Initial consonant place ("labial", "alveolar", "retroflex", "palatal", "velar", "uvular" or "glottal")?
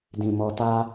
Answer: alveolar